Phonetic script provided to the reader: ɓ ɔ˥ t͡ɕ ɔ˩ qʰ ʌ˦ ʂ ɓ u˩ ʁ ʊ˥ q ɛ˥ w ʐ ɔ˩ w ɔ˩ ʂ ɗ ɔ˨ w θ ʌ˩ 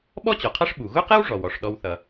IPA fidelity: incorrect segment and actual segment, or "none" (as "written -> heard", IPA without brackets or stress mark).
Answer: ʁ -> ɣ